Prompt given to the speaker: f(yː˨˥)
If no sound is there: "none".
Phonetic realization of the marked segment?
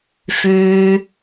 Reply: yː˨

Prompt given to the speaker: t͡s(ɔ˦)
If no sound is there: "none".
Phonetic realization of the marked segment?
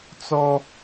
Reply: ɔ˦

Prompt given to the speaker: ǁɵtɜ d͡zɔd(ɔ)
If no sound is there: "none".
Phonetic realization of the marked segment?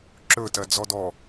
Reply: ɔ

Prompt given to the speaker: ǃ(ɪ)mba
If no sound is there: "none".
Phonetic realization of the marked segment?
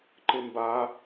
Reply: ɪ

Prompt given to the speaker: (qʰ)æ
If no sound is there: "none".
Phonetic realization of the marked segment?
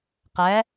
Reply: q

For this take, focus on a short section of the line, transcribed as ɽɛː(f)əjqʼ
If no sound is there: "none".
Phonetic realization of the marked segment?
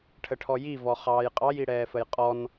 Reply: f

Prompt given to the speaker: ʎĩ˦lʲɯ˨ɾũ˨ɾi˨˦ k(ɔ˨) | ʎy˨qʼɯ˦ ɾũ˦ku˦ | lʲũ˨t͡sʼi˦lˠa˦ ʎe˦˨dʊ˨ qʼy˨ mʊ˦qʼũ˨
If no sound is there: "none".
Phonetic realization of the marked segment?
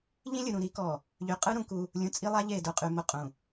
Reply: ɔ˨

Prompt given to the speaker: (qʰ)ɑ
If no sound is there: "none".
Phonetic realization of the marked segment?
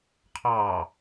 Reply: qʰ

